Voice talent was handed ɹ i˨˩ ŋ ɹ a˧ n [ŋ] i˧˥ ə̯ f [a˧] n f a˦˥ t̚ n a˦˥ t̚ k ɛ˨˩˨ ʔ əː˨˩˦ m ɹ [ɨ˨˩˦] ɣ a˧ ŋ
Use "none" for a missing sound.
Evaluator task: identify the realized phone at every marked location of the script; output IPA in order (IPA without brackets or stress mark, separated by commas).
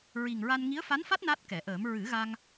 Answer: ŋ, a˧˥, ɨ˨˩˦